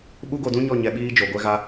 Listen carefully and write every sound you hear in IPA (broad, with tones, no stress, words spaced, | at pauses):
ɓu˦ɡo˧dũ˦ɲɔ˦˨ ɲɛ˧ɓiː˦ d͡ʒo˧ɡʷɛ˦ ɣa˧